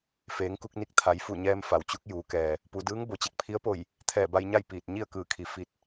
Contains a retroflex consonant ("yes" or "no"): no